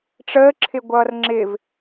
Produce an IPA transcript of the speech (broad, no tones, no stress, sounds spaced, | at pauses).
ʈ͡ʂ əː ǁʰ ɪ ɡʷ ʌː r ŋ͡ǁ ɪ v